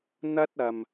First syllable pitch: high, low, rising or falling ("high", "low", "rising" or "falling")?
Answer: high